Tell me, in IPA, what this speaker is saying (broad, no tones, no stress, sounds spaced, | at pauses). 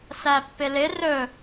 s æ pː ɪ l ɪ r ɵ